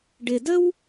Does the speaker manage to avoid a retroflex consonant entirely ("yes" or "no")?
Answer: no